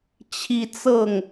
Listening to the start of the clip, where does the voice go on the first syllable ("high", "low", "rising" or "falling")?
high